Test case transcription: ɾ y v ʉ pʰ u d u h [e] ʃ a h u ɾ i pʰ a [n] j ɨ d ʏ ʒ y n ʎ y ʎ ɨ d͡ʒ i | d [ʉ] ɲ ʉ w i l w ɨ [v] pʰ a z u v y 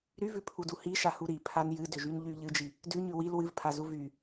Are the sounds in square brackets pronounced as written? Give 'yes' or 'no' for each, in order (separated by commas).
no, yes, yes, yes